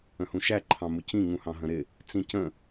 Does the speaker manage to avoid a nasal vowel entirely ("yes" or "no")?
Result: no